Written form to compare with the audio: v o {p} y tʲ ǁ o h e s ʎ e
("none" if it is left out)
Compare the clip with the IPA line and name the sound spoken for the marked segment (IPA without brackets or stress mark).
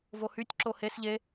h